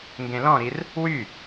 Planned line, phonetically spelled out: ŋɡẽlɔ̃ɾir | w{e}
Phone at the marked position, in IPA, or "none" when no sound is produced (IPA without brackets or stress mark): y